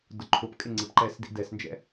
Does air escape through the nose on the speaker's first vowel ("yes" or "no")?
no